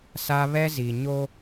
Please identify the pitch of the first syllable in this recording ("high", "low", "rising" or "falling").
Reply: high